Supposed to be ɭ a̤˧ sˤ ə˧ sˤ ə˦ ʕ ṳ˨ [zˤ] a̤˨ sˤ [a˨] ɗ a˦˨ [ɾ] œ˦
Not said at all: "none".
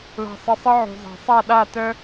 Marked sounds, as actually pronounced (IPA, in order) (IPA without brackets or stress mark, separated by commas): zˤ, a˦˨, t